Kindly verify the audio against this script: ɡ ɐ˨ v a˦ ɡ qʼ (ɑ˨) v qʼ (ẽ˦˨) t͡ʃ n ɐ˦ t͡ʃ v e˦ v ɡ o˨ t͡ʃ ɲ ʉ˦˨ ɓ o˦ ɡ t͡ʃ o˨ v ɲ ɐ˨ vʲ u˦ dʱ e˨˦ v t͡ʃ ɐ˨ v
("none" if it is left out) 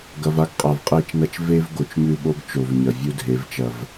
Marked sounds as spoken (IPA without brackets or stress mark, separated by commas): a˨, e˦˨